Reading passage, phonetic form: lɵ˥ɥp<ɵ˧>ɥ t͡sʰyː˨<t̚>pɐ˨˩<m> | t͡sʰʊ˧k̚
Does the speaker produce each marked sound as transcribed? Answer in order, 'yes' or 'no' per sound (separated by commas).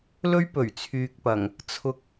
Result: no, no, no